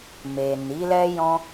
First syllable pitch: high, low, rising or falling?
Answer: low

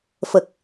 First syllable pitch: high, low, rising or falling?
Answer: low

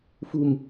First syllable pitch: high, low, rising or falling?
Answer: low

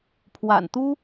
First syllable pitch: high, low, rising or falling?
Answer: low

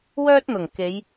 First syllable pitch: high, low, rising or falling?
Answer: high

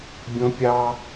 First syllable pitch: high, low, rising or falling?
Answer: high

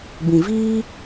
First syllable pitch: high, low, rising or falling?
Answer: low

